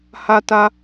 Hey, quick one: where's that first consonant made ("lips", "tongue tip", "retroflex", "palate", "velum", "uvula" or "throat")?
throat